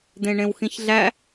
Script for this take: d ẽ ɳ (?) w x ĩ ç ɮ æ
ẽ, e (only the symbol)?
ẽ